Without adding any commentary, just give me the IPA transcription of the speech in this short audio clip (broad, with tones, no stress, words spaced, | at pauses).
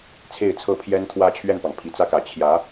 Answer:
t͡sʰe˥˩ɪ̯t͡sʰɤ˥ pʰjɛ˥nt̪ʰwä˥t͡ɕʰɥɛ˥˩npɑ˩ŋ pʰi˨˩t͡sä˥kä˨˩ t͡ɕʰjä˧˥